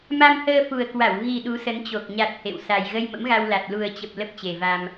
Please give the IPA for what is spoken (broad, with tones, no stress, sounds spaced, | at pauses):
m a˧ m h əː˧ f u˨˩ ə̯ k w a˧˩ w ɣ i˨˩ ɗ u˨˦ s ə˨˦ n t͡ɕ o˨˩ k̚ ɲ a˨˩ t̚ h ḛ˧˨ w s a˨˩ j ɣ ə˧ j m ə̰˧˥ m ɣ a˧ w l a˨˩ t̚ l u˨˩ ə̯ t͡ɕ ə˨˩ p̚ l ə˦˥ p̚ t͡ɕ e˨˩ v a˧ m